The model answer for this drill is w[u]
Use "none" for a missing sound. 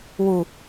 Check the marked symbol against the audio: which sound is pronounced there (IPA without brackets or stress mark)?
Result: u